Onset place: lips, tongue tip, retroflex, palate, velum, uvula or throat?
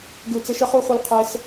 velum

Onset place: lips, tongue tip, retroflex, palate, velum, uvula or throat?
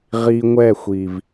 uvula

